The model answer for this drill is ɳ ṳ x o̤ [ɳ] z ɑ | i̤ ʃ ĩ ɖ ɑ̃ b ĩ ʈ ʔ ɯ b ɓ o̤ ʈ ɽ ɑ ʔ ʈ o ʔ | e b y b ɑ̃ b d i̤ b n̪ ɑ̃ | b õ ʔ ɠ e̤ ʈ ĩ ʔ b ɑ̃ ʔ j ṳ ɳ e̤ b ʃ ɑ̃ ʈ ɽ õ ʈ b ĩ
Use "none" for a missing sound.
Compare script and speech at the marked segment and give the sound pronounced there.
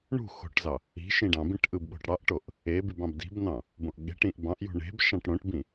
ʈ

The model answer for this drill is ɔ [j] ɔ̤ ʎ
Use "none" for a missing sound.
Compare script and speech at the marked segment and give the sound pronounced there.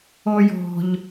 j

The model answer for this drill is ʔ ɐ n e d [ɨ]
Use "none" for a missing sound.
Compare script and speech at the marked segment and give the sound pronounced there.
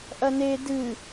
ɨ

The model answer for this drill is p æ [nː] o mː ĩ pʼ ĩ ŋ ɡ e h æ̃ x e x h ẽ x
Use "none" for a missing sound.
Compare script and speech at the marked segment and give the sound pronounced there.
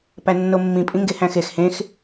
nː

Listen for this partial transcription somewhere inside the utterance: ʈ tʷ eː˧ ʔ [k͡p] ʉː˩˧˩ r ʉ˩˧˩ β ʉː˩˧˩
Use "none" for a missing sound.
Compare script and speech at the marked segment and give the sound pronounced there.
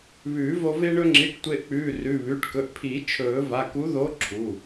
k͡p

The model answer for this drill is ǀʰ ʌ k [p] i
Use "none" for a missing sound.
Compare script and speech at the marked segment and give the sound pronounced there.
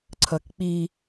k͡p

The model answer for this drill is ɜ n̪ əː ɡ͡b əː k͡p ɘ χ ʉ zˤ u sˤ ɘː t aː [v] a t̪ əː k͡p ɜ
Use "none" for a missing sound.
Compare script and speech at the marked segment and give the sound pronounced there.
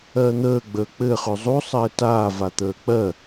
v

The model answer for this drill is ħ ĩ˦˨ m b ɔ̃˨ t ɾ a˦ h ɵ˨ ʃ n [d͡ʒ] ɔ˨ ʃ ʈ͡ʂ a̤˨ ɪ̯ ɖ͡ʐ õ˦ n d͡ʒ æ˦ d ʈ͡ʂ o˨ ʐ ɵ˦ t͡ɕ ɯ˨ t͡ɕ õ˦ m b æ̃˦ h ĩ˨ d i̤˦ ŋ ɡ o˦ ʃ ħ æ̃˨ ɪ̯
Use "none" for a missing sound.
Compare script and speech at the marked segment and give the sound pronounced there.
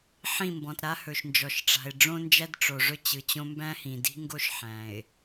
d͡ʒ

